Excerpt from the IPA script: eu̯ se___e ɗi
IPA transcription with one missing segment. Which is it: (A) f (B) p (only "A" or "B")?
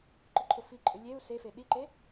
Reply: A